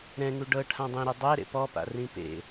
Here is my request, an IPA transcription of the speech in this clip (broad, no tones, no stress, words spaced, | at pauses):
ɾɛ̃ŋu ɖɤ ʈʰãdˤẽɾɛ dˤɛ ɾḛpɔpa̰ rĩpḛ